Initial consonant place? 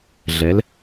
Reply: alveolar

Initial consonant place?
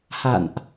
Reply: glottal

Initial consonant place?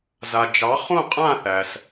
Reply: alveolar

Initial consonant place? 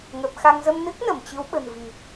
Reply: velar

